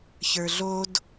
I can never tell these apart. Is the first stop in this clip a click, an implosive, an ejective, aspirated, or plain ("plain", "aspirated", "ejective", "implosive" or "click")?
plain